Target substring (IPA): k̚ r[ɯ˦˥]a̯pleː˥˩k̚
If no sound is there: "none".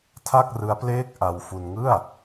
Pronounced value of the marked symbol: ɯ˦˥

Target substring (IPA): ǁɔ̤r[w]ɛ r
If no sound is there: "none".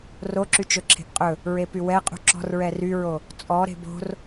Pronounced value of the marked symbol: ɹ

